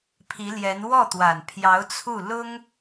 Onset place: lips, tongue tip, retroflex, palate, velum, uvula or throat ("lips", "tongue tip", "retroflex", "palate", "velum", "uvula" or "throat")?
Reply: lips